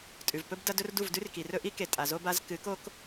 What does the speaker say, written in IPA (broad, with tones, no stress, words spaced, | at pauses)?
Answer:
tʼʉ˨vpɵ˦b dɐ˦dɵ˦r du˦˨vdʉ˦rki˨rɵ˦ ʔi˦ke˨ tʼa˨zo˦ba˦z kɨ˨˦ko˦k